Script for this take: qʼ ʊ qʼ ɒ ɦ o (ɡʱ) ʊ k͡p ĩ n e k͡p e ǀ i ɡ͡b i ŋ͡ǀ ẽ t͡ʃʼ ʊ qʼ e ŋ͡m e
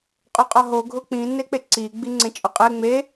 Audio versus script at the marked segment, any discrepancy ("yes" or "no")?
no